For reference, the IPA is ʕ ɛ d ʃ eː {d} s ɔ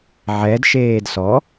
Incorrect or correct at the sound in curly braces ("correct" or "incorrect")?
correct